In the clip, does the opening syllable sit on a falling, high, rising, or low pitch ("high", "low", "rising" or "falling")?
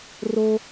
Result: high